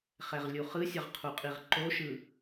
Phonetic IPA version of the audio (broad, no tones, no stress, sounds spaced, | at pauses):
χ ɛ ʁ lʲ u χ ɯ sʲ ʌ ʁ qʰ u qʼ i ʁ ǃ o ʃ ɯ